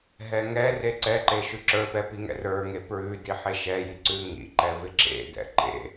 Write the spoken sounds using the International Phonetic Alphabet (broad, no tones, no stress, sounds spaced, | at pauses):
ɦ ɛ ŋ ɛ r e ǀ ɛ ǃ e ʃ ʉ ǁ ə˞ p ɛ p i ŋ ɛ̰ r ə˞ ŋ e p ɹ ʉ d i ħ e ʃ ɛ j i ǀ ʉ ŋ ḭ ǃ ɛ v ɪ ǁ ḛ d ɛ̰ ǃ ḛ